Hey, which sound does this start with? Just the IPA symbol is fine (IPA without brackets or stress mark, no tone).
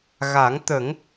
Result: ɣ